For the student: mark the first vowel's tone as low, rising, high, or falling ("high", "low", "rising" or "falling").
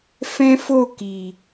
high